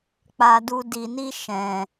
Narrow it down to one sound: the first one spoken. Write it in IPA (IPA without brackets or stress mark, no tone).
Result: k͡p